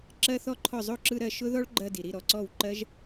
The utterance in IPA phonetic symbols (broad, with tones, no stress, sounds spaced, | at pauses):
ǁ ɜ˦˥ θ ɔ˦˥ ǃʰ ɔ˥˩ zˤ o˥˩ ǁ ɯ˧ ɾ ɜ˥˩ ʃ ʊ˦˥ ð ɔ˦˥ ɭ ɡ͡ǃ ɜ˧ d i˩ ɾ i˥˩ ɾ ɔ˧ ǀ ɔ˥˩ w ǃ ɜ˦˥ ʒ